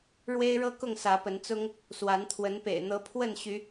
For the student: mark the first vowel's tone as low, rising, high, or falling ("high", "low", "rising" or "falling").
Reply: high